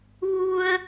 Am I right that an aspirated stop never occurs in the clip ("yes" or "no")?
yes